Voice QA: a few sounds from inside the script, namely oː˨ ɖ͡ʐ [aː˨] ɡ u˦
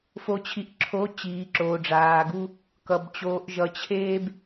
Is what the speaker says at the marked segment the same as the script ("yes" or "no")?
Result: yes